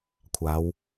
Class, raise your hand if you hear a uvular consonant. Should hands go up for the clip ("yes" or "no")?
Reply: no